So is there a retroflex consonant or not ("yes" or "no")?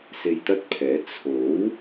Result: no